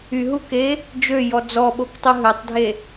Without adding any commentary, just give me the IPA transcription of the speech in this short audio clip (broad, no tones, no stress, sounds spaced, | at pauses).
y ɦ u k e | d͡ʒ ø j ɔ d͡z ɔ ɓ o k tˤ u ɦ ø tˤ dʱ e